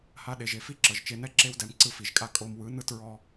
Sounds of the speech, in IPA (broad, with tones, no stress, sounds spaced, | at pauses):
h a˧ ɗ e˨ ʒ e˨ f i˦ ǁ ɤ˨ ʒ t͡ʃ e˧ n ɛ˦ ǁ e˧ w d ɛ˨ m ǀ ɯ˧ f i˨ ʒ kʼ a˦ kʼ o˧ m w ɯ˨˦ n ɯ˧ t ɹ ɔ˧